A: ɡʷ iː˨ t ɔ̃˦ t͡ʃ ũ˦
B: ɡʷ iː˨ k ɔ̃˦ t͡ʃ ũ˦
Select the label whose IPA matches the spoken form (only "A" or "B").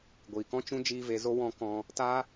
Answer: B